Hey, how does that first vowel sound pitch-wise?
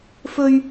high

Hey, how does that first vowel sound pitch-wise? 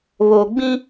low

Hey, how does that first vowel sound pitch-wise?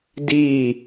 falling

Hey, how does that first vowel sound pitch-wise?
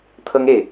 high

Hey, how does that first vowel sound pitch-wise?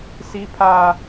high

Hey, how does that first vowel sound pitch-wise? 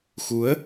rising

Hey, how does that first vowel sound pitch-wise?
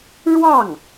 falling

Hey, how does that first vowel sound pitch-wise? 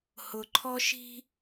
low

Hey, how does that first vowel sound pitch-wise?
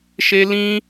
high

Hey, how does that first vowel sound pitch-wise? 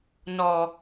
low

